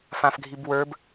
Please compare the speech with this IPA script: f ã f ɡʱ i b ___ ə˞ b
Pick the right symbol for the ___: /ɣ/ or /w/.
w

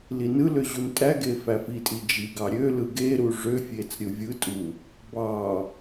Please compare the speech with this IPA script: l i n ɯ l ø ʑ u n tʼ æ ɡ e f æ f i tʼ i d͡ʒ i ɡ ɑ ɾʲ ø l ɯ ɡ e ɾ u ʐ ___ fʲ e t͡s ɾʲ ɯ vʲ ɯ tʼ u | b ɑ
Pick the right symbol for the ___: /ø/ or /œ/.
ø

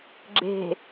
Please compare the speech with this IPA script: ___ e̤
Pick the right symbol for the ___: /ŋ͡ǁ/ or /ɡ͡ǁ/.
ɡ͡ǁ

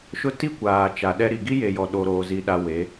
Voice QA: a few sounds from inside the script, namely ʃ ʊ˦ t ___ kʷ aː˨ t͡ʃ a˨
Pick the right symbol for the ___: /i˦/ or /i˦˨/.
i˦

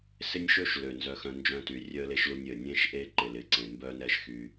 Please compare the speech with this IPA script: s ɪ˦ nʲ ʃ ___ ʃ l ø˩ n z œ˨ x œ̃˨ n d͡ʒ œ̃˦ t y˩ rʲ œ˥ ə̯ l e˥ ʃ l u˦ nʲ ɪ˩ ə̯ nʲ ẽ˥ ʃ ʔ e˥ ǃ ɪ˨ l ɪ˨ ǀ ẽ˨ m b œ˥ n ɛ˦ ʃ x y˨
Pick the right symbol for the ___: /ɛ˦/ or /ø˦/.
ø˦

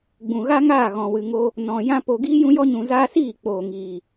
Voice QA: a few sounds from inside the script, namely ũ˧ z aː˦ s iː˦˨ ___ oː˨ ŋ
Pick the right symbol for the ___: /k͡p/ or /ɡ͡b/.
k͡p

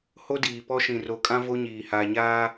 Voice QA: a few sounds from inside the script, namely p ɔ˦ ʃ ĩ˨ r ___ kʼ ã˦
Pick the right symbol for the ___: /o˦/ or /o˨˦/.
o˨˦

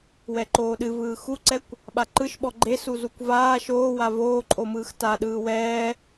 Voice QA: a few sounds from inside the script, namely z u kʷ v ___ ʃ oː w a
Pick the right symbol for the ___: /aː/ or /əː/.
aː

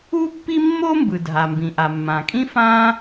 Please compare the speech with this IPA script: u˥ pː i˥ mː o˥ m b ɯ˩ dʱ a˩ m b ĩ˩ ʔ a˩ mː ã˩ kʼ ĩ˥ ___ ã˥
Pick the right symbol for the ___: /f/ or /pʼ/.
f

